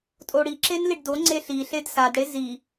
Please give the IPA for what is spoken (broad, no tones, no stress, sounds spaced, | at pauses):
tʼ o ɽ i ǁ e n l i ɖ d o ŋ͡ǀ e ɬ i ɬ e d s a d ɽ e z i